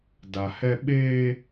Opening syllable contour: low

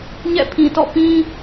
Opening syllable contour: falling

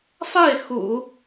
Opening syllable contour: falling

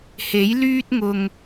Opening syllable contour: rising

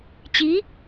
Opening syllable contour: rising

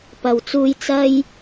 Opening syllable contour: low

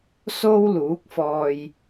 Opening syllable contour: high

